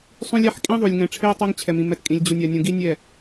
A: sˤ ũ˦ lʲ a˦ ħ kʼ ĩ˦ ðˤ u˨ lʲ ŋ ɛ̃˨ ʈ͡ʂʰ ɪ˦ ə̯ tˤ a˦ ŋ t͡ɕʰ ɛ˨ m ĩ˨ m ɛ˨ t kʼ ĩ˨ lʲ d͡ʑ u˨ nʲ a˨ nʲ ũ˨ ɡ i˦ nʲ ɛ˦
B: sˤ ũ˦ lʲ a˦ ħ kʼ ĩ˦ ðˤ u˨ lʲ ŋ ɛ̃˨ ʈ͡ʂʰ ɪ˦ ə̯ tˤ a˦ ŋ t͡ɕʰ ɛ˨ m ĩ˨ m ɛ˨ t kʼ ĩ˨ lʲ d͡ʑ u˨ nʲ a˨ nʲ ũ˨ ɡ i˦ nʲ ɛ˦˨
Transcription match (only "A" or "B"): B